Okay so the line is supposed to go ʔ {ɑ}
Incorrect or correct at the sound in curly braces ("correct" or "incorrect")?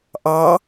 correct